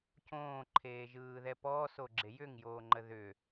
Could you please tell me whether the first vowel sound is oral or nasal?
nasal